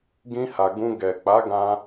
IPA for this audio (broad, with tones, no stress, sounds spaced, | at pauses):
ɡ ĩ˧ h a˨ ɡ ũ˧ ɡ ɛ˨ k͡p a˨˦ ɡ ã˧